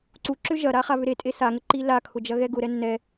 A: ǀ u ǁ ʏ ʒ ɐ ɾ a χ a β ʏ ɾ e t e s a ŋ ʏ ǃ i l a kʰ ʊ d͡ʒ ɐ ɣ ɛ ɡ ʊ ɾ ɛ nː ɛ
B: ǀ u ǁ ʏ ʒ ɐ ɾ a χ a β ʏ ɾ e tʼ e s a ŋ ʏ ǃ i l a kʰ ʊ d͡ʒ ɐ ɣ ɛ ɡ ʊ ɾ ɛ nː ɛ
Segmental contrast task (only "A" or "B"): B